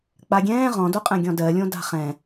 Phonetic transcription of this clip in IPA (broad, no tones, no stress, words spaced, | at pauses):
k͡paɡʲɛ̃ː ʁɔ̃doqʼɛ̃ ɡʲɔ̃dɜlʲõ da̤χɛ̃